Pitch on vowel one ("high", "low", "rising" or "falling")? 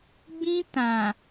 high